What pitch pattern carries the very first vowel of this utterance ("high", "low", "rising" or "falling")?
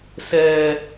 low